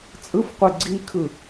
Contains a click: yes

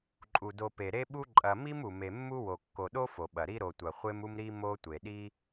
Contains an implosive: yes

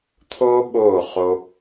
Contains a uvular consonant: yes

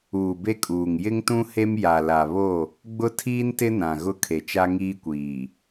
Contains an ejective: yes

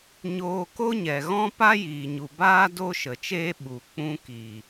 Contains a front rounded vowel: no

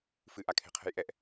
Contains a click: no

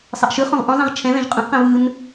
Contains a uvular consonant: yes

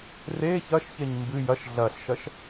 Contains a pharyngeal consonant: no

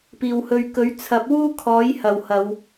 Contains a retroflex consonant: no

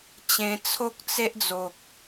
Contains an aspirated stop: yes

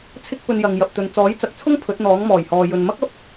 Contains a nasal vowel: no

